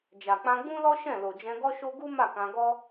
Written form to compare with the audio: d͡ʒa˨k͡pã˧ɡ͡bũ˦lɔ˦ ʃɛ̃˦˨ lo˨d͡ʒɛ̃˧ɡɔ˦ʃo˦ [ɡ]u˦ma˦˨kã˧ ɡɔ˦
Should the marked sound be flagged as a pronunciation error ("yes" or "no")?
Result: no